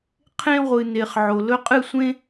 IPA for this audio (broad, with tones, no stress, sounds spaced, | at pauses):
qʰ ẽ˦ ʁʷ ɨ˨ n e˨ χ ʕ o˨ l ɵ˦ qʼ ɨ˦˨ sʷ ẽ˦